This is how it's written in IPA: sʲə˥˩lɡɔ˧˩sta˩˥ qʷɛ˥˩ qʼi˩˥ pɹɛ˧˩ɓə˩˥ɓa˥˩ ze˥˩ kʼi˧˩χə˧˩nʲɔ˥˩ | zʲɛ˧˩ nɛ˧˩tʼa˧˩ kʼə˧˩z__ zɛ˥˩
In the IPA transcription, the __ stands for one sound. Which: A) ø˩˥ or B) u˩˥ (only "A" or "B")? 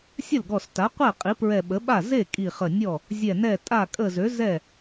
A